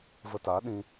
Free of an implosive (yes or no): no